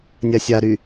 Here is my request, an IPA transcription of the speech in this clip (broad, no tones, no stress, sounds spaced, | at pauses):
nʲ a sʲ a ɾ y